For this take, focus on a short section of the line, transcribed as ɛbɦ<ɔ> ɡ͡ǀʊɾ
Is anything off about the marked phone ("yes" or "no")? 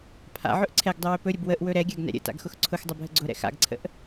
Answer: yes